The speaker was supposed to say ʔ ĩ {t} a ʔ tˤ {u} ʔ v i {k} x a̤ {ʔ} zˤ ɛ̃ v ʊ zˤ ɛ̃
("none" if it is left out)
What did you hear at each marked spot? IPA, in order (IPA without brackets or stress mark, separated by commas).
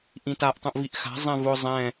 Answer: t, ũ, ʔ, none